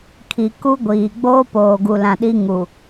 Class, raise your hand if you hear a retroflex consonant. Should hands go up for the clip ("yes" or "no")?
no